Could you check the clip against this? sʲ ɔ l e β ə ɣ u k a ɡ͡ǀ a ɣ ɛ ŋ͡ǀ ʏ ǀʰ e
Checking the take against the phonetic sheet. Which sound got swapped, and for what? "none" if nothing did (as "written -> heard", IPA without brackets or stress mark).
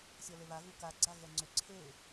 ə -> a